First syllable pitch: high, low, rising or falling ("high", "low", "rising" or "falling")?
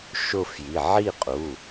falling